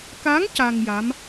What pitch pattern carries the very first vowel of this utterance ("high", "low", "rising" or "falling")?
rising